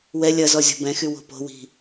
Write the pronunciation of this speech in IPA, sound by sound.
wɛ lʲɐzɔ zʲɔ̤bɛ̃xy wo̤po̤wi̤

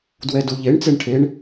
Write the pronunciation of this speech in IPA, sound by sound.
dwɛduʎeɳ t͡seɳʈʰeɳ

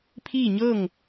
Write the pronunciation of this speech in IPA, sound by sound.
pʰiː˥˨ ɲɤː˥˨ŋ

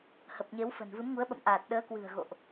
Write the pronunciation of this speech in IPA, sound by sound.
hə˨˩p̚ɲe˨˦wfə̤˨˩n vɨ˨˦mŋu˨˦ə̯ɓə̰˧˨mʔaː˨˩t̚ ɗəː˨˦ kwɨ̤˨˩ə̯ɣo̰˧˨ʔ

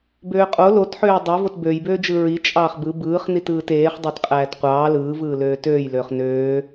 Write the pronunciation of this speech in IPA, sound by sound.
bøːqʼo lotħøː dˤevot bøjbøːd͡ʒɯ ɹi t͡ʃʼɑːχbɯ bɯːχnitɯːt eːχdˤøt qʼæːtqʷɑː lɯːvɯːløː tøːjløːχ nøː

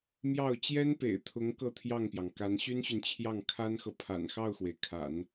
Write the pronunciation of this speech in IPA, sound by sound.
mjɑ˥˩ʊ̯ t͡ɕjɛ˥npḛ˨˩ɪ̯t̪ʰʊ˧˥ŋ kɤ˥˧t̪ʰjɑ˥˩ŋpjɑ˩ŋka˧˥n ɕy˥nɕy˨nt͡ɕʰjɑ˥˩ŋ kʰa˥nxɤ˨pʰa̰˨˩n xɑ˥˩ʊ̯xwe˩ɪ̯kʰa̰˨˩˦n

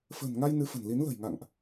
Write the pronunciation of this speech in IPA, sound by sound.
fə̤ː˨˩nŋa˧j nɨ˨˦fə̤˨˩n li˨˦nlə̤˨˩j ŋa̰˧˨ŋʔ

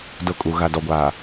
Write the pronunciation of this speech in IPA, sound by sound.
dʊ˦˨ kʼu˨ ɣa˨dɔ˨ɡʷaː˨

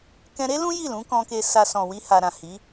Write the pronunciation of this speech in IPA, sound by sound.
kɛ̃˧ɾe˦ lũ˦ ji˦˨lũ˨˦kɔ̃˧ke˧ sa˧ sɔ̃˨wi˧ha˨ɾã˨ hi˨˦

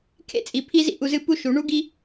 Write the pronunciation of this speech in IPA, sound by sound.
kʰḛ˦t͡sʼi˨pʰi˦zḭ˦ ʔu˨zɨ˧ pu˦ʃu˨˦ ɳu˦ɡi˦

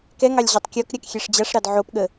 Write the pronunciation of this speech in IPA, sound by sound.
kɛŋɑlʲ ʑotˤkʲɔkɾʲak xʲɛʂd͡ʑaʂɾɑd ʕopɠə

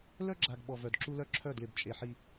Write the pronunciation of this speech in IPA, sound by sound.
lœ˦ɡ͡ǁa˨ɡ ɓɔ˨vœ˨d ǁu˦lœ˦ǁʰœ˦˨dlɪ˨b t͡ʃʼe˨ħi˨

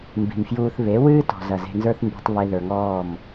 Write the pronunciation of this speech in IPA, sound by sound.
mbi̤˨mfjuː˧θ βe˨˦ wɨː˦tɔ̤˨zɐ˨ ze̤˧nzə˞˦θmbi̤˧tˤ βe˧ðə˞˨ŋɔː˦˨m

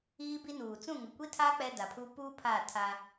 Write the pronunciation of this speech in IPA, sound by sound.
iː˦bi˦nuː˨ t͡sũ˦˨ŋʊ˨kʷi˦tʰaː˦ k͡pɛ˦da˨pʰu˦ puː˦ pʰaː˦˨tʰa˦

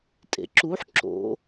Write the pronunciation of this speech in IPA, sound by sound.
tʼḛǁuħ ǁo̰

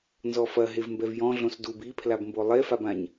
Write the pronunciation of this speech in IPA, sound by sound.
nzɔfɐ ɦevmbɛvjɔ̃ ɮõsdub ipʰlab mbolˠefabãɲ

